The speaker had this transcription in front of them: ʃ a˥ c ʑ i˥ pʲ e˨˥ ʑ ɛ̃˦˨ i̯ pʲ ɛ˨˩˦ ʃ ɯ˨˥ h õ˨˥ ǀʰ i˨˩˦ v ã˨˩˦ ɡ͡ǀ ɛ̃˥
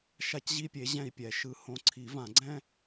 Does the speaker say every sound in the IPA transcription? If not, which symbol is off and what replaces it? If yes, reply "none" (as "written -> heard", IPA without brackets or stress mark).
none